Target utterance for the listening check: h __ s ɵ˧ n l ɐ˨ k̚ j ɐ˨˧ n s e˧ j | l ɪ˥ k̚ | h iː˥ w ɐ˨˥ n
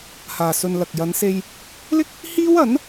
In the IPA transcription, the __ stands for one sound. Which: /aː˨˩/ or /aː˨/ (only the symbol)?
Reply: aː˨